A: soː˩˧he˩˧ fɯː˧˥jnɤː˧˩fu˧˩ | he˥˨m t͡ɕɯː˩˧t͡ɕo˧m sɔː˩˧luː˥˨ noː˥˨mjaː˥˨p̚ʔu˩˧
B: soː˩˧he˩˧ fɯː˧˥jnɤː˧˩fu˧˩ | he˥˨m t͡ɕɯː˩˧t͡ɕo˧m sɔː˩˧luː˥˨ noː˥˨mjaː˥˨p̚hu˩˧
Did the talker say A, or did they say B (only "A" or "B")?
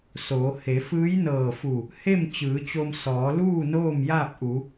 A